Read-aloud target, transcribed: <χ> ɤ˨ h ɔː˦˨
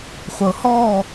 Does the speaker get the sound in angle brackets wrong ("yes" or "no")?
yes